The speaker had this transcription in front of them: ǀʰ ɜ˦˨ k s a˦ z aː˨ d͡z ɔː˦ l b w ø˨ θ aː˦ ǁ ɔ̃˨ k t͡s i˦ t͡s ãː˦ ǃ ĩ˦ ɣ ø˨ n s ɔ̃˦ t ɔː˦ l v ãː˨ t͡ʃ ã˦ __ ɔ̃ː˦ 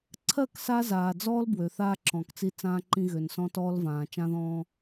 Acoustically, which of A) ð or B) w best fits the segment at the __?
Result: A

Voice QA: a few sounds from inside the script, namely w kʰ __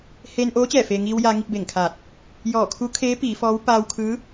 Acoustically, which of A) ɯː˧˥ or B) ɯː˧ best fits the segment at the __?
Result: A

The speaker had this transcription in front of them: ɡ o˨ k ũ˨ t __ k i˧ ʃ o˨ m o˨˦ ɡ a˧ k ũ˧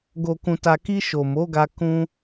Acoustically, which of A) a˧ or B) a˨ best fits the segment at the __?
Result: B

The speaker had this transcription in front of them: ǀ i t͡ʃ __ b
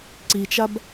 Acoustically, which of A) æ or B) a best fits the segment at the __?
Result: B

